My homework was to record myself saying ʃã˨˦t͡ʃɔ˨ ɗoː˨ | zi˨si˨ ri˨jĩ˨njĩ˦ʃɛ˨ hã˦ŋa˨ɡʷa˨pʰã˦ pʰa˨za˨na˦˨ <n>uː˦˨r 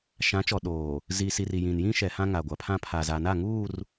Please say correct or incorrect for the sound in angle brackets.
incorrect